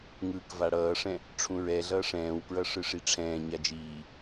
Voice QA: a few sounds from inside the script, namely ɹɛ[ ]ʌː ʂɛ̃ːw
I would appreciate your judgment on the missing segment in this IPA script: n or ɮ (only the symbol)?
ɮ